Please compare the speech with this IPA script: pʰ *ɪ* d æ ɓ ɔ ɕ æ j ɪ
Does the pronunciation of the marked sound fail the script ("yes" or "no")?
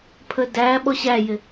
yes